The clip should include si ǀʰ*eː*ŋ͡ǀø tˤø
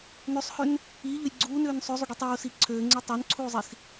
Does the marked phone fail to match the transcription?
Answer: yes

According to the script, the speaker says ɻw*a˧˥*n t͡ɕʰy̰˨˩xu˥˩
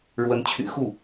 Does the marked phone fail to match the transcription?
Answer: yes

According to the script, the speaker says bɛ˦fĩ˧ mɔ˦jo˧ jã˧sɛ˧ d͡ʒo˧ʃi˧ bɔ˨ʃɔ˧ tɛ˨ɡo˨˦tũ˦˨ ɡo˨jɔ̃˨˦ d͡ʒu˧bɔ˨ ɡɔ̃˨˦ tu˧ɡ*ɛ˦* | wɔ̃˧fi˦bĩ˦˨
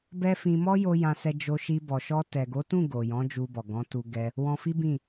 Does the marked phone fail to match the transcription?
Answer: no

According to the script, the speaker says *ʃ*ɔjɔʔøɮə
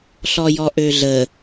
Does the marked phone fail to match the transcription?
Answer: yes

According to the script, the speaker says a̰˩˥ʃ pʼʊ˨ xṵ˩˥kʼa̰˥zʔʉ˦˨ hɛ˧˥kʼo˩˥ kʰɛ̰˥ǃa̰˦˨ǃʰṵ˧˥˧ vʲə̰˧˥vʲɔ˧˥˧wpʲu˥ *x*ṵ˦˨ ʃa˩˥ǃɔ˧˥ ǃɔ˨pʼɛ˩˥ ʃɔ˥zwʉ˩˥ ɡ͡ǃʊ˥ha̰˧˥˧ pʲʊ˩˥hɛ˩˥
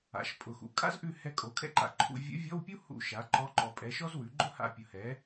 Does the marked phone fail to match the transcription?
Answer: yes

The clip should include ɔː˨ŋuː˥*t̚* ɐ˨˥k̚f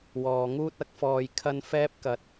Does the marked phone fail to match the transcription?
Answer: no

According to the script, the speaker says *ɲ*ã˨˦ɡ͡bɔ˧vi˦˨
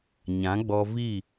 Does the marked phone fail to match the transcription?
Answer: no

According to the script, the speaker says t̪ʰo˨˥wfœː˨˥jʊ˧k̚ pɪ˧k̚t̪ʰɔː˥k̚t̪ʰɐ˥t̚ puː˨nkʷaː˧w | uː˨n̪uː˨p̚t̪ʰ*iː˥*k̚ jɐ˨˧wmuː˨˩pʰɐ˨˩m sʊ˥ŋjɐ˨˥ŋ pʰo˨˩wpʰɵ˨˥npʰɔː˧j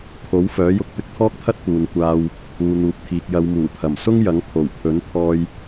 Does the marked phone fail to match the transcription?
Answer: yes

